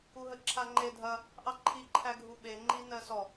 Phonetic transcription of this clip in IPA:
u ɦ ə ǁʰ a ŋ͡ǃ e dʱ ɐ | ʔ ɑ ǃʰ i ǃʰ æ ɡʱ u ɓ e ŋ͡ǃ i n ɜ s ɔ

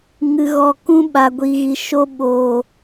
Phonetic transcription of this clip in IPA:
ŋ ɨ˨ ɣ ɔ˨ k ũ˧ ɓ a˨ ɡʷ iː˨ ɣ i˨ ʃ o˧ ɓ o˨

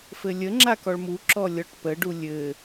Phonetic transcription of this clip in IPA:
f ɘ lʲ ə ŋ͡ǁ a k ɔ ɭ m u ǁ ɔ lʲ ɔ ʈ p ə ɖ u lʲ ɘ

